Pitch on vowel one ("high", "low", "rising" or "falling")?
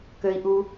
high